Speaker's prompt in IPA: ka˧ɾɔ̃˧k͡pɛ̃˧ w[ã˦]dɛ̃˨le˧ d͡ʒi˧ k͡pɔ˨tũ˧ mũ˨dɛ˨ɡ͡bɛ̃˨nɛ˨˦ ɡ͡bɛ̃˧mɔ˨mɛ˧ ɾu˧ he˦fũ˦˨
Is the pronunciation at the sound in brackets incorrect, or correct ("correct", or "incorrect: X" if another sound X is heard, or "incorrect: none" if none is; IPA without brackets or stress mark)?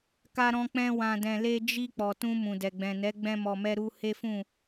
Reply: incorrect: ã˨